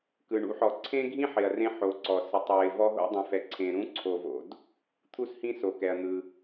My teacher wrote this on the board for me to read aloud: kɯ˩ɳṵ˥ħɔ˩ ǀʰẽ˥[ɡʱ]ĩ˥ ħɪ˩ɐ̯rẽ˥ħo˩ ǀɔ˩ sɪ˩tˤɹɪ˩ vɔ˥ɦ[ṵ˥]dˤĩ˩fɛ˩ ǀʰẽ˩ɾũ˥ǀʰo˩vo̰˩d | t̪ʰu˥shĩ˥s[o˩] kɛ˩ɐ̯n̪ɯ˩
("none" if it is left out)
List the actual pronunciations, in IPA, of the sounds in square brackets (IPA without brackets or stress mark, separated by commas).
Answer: ɡʱ, o̰˥, o˩